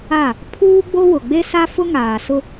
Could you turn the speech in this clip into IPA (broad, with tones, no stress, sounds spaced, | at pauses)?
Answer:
a˦˨ | pʰ uː˦ ɡ͡b o˦ w ʊ˨ ɡ͡b e˦ s a˦ f ʊ˦ ŋ aː˨ s ʊ˦